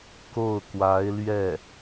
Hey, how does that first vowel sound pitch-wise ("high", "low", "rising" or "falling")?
falling